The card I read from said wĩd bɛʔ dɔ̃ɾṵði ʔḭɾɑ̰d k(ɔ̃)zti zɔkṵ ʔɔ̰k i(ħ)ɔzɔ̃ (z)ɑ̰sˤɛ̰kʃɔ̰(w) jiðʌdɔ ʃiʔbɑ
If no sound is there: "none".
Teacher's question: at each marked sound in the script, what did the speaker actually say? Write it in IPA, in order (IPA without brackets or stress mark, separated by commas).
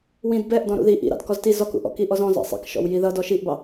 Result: ɔ, ʔ, z, w